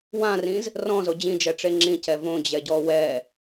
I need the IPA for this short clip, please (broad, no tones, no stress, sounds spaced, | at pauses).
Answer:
w ã r ĩ z | r ɔ̃ z o d͡ʑ ĩ d͡ʒ ɛ ʈ͡ʂ e ŋ͡ǁ ĩ c ɛ v õ d͡ʑ ɛ ɟ ɔ w ɛ